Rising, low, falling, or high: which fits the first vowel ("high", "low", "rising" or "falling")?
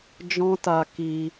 high